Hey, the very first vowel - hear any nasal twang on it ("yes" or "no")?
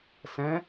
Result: yes